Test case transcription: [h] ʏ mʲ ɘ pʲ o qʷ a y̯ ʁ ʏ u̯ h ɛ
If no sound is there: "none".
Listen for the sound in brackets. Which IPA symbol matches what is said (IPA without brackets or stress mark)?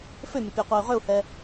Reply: f